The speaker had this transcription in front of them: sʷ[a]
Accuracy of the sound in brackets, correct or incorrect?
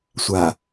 correct